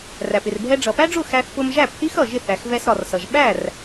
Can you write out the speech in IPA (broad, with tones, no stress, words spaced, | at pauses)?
ræ˩pɪ˩r bʱɛ˧ɖ͡ʐʌ˩pæ˥ɖ͡ʐʊ˥˩ xæ˧θpʊ˧mʒæ˥˩pθi˥x ʌ˩ʒɪ˥˩θ æ˩xvɛ˧sɾɒ˩rsʌ˩ʒ ɓæ˥˩r